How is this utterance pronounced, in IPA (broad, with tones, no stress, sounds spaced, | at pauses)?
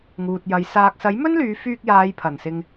ŋ uː˨ t̚ j ɐ˨˥ j s aː˨ k̚ s ɐ˨˥ j m ɵ˥ n l yː˨˧ f yː˧ k̚ j aː˨˧ j pʰ ɐ˨˩ n s ɪ˨ ŋ